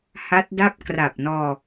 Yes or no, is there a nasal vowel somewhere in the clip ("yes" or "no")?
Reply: no